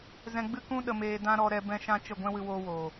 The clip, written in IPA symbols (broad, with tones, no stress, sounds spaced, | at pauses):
z ɛ̃˧ ɡ͡b ɨ˦ k ũ˦ ɗ ə˨ m eː˨ d ã˦ ɾ ɔ˧ ɾ ɛ˧ b ɛ̃˦ ʃ ã˦ t͡ʃ ə˦˨ ɡʷ ɛ̃˦ w ɨ˧ w oː˧ w oː˨